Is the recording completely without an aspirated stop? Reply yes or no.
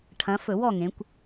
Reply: no